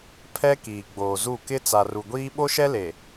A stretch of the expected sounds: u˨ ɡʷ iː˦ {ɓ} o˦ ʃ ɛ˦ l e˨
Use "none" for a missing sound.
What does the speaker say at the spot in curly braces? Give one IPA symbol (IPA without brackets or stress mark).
ɓ